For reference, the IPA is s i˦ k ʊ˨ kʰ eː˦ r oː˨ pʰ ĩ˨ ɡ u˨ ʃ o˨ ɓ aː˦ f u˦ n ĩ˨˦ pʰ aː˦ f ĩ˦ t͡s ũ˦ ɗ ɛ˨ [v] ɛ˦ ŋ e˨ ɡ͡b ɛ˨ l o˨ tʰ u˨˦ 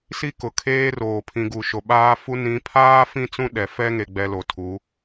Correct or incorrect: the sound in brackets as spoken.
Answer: incorrect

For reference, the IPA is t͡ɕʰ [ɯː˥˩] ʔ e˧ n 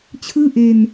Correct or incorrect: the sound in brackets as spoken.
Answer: correct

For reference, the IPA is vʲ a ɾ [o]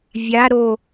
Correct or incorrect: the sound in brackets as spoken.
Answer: correct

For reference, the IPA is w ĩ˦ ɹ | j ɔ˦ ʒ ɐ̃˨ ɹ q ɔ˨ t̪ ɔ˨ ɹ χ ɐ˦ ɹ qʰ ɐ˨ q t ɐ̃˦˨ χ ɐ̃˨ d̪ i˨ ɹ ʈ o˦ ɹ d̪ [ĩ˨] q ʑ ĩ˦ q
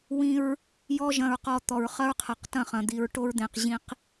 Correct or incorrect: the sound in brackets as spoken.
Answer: incorrect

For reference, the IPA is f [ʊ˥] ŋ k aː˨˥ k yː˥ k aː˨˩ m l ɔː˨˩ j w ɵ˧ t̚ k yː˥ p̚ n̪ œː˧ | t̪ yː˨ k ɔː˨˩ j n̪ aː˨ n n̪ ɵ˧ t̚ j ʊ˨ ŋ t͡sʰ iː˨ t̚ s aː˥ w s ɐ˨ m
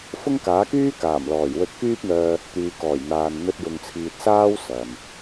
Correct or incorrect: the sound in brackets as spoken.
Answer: correct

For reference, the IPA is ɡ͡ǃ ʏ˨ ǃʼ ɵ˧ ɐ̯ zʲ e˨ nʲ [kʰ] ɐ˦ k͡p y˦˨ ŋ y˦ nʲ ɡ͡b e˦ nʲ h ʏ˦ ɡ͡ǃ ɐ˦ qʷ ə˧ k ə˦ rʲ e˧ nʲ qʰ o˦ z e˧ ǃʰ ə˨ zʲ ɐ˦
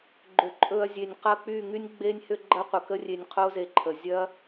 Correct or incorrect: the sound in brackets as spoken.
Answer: incorrect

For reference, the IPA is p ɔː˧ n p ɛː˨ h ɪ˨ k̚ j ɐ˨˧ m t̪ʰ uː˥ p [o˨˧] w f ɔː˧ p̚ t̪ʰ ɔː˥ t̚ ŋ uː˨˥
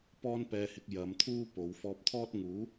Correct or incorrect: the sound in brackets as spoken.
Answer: correct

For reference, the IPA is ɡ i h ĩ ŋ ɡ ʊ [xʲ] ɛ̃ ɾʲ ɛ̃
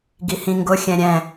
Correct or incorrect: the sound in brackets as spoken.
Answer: correct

